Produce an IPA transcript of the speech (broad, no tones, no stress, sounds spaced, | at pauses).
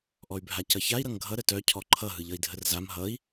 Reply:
ʔ ɔ y̯ bʱ a c ʌ ç a i̯ ɾ ʌ ŋ ɡʱ ʌ ɾ ə t œ cʰ ɔ ǃʰ ʌ ɦ ɯ ʎ ʌ i̯ dʱ ə r z a m ɦ ʌ i̯